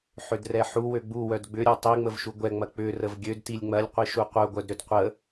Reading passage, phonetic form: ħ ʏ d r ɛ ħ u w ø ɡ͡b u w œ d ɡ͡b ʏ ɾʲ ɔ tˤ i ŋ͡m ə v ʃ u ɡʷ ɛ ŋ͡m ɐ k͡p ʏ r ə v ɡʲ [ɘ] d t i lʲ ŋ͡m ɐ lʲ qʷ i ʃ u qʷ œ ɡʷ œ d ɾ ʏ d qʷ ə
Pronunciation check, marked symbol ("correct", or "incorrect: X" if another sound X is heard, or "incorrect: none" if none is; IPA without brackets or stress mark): incorrect: ø